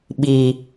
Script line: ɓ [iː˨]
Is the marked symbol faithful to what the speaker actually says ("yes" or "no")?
yes